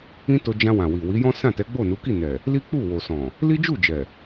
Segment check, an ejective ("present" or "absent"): absent